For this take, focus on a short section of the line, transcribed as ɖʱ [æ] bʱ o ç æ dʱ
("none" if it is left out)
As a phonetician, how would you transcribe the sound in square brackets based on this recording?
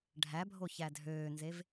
æ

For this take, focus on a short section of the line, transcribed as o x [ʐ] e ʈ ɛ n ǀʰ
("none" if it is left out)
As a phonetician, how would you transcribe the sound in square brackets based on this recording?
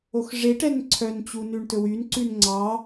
ʐ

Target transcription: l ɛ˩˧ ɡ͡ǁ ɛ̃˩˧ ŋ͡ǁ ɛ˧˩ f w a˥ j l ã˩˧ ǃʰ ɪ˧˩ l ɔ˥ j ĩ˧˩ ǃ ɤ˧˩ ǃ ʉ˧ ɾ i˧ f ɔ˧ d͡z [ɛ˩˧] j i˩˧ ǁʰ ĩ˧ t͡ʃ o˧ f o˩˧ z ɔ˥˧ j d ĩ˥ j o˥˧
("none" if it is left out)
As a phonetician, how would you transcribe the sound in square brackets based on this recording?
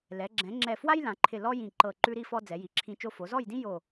ɛ˩˧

